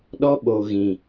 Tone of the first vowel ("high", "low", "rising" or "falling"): high